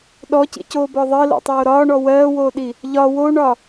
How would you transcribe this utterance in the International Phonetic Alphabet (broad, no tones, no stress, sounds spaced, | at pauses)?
ɗ ɔ c ḭ c oː b ɔ ðˤ ɜ l o̰ tˤ oː ɾ ɒː ɳ ɔ w ɜː w oː ɗ i | ʎ ɒ w o ɳ ɒ